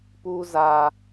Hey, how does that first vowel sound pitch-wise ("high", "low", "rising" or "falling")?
high